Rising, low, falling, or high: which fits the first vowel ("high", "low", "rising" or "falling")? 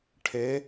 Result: rising